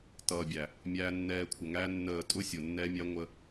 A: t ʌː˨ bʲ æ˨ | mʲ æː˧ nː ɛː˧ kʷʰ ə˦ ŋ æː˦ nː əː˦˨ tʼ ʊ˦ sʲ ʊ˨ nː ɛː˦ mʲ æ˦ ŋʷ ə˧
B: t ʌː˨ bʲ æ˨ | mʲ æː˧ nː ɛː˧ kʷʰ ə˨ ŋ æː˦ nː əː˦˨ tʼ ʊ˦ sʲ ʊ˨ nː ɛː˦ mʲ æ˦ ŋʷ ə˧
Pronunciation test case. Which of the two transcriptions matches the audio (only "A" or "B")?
B